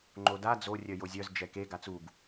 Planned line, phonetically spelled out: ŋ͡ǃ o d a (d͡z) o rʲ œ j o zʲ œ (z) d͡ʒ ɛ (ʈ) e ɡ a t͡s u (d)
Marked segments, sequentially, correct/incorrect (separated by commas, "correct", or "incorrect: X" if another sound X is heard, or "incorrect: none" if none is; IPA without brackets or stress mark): correct, correct, incorrect: k, incorrect: ɡ